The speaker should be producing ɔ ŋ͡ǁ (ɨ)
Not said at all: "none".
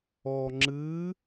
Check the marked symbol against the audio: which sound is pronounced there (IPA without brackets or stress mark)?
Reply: ɨ